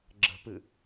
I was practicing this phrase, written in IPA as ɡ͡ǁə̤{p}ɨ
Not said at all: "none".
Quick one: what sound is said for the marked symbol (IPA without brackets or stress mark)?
p